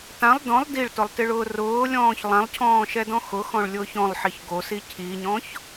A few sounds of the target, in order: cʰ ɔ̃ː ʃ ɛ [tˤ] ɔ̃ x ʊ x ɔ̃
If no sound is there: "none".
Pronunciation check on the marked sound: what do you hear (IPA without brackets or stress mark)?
d